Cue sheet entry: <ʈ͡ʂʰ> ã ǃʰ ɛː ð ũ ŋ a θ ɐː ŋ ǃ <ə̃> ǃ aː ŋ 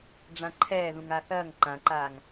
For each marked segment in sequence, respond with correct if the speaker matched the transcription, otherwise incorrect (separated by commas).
incorrect, incorrect